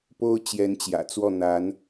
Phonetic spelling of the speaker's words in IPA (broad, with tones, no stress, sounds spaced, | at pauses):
p o˥ ʊ̯ t͡ɕ j ɛ˧˥ n t͡ɕ j ä̰˨˩ t͡s w ɔ˥˩ n̪ a˧˥ n